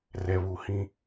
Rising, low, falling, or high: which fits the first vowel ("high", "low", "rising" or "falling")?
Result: low